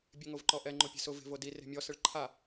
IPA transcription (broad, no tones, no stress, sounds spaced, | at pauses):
bʲ e ŋ o v ǃ ɔ ʔ ɛ ŋ͡ǃ o pʲ e̤ s ʊ v e̤ v o d i r e̤ mʲ ɔ s ɪ ɭ ǃʰ a